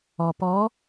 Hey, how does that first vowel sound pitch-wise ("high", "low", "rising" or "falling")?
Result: low